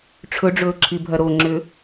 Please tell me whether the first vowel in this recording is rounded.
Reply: yes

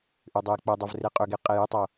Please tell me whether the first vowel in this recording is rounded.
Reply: yes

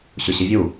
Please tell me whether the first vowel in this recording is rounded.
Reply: yes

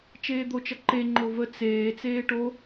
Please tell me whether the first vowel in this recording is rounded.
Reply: no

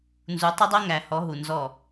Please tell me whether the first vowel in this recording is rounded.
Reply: yes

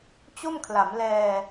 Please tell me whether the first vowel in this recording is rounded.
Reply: yes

